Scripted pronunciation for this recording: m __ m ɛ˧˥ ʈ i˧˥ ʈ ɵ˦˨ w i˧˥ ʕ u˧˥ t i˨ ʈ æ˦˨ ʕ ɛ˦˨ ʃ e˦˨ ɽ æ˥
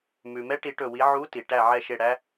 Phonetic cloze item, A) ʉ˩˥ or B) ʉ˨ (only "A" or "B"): B